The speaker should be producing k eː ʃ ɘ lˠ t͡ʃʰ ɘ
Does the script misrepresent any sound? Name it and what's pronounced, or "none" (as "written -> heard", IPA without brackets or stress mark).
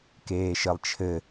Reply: none